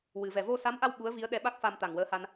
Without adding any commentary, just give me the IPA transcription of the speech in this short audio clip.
w ɨ˨˩˨ v ɛ˨˩ v o˧ s a˧˥ m ʔ a˧ w ɓ u˧˥ ə̯ v i˧˥ ə̯ ɗ ɛ˧˥ ɓ a˦˥ k̚ f a˧ m t̪ a˨˩ ŋ w əː˧˥ h a˧ n

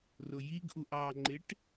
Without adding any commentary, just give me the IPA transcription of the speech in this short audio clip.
r ʊ j i ɡ ʔ u ʔ ɑ ŋ͡ǃ ɪ ʈ

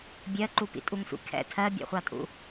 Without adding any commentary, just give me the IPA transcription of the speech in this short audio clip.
bʲ ɜ ǃ u p ḭ tʼ u ŋ sʷ ḭ kʰ ɛ̰ tʰ ɜ bʲ ɛ̰ χʷ ɑ tʼ ṵ

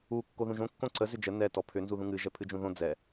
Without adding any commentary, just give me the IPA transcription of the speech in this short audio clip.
u kː o ð ũ ʒ õ kː õ ǀ ə z ʏ d͡ʒ ə n ɛ t ɔ pʰ ʏ n z u ð ũ ŋ ɨ ʒ ɛ pʰ ɨ d͡ʒ ũ ð õ d͡z ɛ

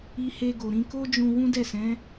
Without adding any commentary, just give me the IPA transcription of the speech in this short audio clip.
i˧ h e˧ ɡ o˨ ɾ ĩ˧ k o˦ d͡ʒ ũ˧ w ũ˦ d ɛ˦˨ s ɛ̃˨˦

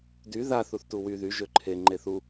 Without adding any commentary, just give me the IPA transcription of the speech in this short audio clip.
d y ð a θ u θ t u w y ð y ʒ ø ǃʰ e ŋ͡ǃ e θ u

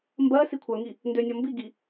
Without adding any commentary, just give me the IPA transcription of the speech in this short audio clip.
m b ɜ s i kʷʰ œ ŋ i | n d ø nʲ ɒ m b i ɡ i

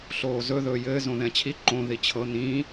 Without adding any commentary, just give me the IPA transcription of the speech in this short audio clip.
ɬ oː z ɵ ð ɵː j ɘː z õ ð ɛ̃ t͡ɕʰ i ǃ õ ð i t͡ɕʰ ɤ n̪ ĩ

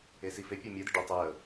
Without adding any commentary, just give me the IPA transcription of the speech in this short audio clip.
e s i f e pʲ əː mʲ əː d̪ ɪ ɖ ʊ tˤ əː

